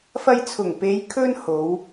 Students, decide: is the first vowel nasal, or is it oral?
oral